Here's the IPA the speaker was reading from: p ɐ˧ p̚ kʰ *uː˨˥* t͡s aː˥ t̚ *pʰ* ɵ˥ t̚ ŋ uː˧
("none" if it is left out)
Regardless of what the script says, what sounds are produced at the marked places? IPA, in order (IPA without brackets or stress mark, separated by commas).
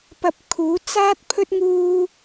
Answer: uː˨˥, pʰ